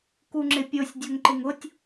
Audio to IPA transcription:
kuŋ͡ǁɪpʲosʲ dʲoŋǃɪŋʊtʲ

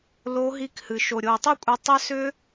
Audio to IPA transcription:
lo˨˦ɦi˨˦khɨ˩ ʃo˩ɾʲo˩i̯tˤi˥˨kʷʼe˨˦ tˤʏ˦˥sʏ˦˥

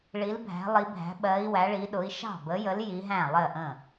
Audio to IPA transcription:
ɭi˨˦lbʱæ̤˨˦lˠi˨˦bʱæ̤˨˦ ɓɜ˨˦i̯ wæ˨˦ɭi˨˦ ɗʊ˨˦i̯ʃɑ̤˥˩ bə˨˦jə˨˦l ji˨˦ɦæ̃˥˩ lˠɜ˥˩ʔə̃˥˩

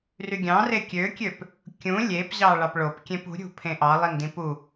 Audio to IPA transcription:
ryɡʲɑ̃ rekʲøkʲøp | kʲũ lʲepʑɑ ɭɑpɭop kʲẽpṳɾʲṳpʰẽ ʔɑlˠin dĩpu

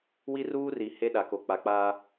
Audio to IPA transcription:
wi˦ruː˦ri˨ he˦ɗa˨ko˨k͡pa˨ k͡paː˦

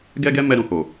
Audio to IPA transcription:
ɡɛ˦ɡɛ˦mɛ˧ ɾũ˨ho˨

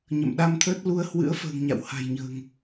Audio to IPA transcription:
ɲə̰˧˨mɗa˧mt̪ʰəː˦˥t̚ lu˧ə̯hwɨ̰˧˥ə̯ fə̤ː˨˩ŋɲa̰˧˨w ha̤˨˩jɲə̤ː˨˩ŋ

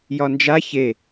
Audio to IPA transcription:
jɒnd͡ʒa çe

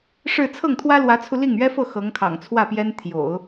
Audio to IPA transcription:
ʂɻ̩˥˧ t͡sʰɤ˥˩ŋt̪ʰwä˥lwä˧˥t͡sʰu˧ li˥˩ŋɥɛ˥fɤ˥˩ xɤ˧˥ŋkʰɑ̰˨˩ŋt͡sʰwä˥˩pjɛ˥n t̪ʰjo̰˨˩˦ʊ̯

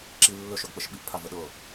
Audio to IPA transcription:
ǁi lːɵʃœɡk͡pəʃ ɓiʔpʰavə ɗɤ

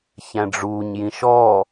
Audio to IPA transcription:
çæ̃ɖ͡ʐuːɲ jĩʃɔː

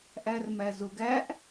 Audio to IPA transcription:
ʔærmæzʊɡ æʔ

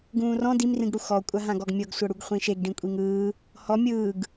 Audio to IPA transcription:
ɡũːrɔ̃ dimrĩɡɽu xɔkʷʼaɦãɡɔɡ mʲɤɡsʷɤɽuɡ χʷĩʃeɡɖĩ kʷʼiŋɯː | hɔ mʲɯːɡ

